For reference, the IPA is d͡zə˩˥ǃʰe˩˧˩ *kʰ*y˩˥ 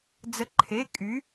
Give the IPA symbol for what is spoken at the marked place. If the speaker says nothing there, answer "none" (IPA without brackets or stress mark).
kʼ